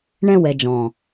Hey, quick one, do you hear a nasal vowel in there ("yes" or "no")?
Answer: yes